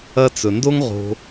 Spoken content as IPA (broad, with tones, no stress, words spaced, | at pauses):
ɐ˧t͡sɵ˨ ndo˦ŋ ʁo̤˧